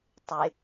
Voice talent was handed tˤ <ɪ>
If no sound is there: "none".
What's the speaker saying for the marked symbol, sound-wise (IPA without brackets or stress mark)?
ɪ